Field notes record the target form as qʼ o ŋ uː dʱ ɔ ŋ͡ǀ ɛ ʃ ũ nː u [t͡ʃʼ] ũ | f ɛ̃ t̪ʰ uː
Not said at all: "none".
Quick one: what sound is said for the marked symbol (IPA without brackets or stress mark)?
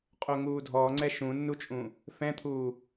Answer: t͡ʃʼ